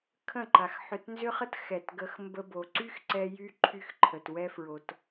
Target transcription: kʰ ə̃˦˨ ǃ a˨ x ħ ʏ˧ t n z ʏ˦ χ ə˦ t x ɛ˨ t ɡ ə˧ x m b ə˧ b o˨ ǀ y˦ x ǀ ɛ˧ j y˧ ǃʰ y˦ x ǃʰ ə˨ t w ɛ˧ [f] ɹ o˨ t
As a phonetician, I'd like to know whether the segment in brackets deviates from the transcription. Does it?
no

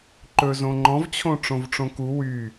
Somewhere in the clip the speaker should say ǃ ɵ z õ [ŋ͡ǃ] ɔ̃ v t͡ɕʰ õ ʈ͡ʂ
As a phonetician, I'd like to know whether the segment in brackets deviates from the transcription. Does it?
no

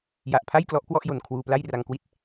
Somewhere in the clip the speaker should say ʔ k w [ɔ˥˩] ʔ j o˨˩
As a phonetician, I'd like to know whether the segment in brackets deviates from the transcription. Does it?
no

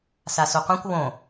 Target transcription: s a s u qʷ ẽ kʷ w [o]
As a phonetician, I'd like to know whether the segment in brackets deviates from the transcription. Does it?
yes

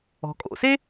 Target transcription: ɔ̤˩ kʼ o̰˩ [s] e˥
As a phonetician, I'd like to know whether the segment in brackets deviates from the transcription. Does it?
no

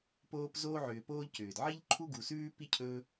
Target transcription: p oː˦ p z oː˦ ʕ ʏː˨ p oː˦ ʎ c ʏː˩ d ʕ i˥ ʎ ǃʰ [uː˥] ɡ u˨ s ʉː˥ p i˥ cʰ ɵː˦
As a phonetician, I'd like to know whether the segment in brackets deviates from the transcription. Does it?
yes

